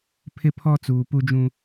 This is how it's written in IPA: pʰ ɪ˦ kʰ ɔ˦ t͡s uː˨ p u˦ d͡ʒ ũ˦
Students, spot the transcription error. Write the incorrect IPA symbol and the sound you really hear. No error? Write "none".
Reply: kʰ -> pʰ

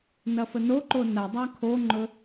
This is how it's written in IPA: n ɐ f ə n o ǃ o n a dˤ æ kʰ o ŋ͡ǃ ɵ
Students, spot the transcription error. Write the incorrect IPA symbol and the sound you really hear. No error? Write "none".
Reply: æ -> a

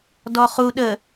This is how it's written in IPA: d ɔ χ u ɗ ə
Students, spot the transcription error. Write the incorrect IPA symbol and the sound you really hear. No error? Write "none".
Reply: none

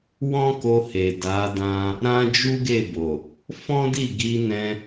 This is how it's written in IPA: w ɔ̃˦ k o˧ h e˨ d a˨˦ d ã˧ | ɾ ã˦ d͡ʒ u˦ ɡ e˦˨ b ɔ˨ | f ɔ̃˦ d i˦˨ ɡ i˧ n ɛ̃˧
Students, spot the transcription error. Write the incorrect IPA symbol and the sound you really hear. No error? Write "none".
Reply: ɔ˨ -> o˨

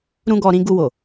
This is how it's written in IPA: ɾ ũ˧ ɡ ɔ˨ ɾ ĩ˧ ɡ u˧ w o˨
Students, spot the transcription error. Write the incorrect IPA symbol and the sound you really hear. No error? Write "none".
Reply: none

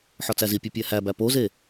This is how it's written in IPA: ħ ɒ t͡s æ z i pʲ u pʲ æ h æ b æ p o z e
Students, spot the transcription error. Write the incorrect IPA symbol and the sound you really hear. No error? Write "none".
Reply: none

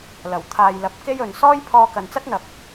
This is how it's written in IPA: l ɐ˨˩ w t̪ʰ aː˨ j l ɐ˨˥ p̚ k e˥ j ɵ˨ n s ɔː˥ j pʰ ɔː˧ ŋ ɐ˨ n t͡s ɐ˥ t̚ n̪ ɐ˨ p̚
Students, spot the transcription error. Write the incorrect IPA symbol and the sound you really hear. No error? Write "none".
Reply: ŋ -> k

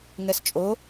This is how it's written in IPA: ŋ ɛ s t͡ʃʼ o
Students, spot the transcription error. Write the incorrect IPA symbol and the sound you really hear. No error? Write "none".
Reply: none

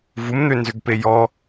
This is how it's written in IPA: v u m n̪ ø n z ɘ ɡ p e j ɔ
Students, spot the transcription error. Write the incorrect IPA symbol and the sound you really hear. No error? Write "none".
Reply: ɘ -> ø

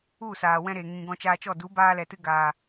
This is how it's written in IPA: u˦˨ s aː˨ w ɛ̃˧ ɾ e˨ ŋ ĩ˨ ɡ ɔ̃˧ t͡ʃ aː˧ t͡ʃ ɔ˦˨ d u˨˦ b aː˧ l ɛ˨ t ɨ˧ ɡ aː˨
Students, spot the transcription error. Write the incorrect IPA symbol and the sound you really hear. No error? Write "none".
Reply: none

